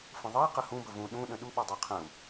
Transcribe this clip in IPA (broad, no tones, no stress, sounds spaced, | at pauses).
f ə̃ ðˤ ʌ i̯ q ə h ũ b ə v ũ ɗ ũ ɗ ə̃ ɗ u ɓ ʌ dˤ ɛ qʰ ə̃ u̯